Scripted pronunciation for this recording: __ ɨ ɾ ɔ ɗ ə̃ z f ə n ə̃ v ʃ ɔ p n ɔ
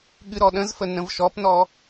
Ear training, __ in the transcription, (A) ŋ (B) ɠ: B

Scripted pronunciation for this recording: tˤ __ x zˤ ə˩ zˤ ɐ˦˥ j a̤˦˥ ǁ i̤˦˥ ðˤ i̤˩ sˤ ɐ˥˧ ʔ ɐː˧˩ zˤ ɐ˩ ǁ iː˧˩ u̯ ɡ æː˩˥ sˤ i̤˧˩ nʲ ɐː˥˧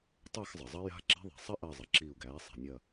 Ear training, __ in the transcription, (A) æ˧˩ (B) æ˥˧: B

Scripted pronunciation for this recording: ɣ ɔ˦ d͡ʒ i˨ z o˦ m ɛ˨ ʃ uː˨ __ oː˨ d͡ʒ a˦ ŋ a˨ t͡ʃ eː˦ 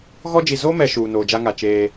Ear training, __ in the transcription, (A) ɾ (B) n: B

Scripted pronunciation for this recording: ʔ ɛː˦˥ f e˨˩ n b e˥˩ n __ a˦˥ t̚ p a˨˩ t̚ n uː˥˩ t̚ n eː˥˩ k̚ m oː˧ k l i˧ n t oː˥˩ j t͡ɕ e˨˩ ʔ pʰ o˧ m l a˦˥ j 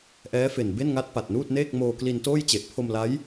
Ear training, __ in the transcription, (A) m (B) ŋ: B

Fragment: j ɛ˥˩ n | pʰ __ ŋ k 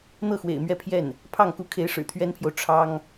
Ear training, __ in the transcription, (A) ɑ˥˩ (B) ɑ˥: A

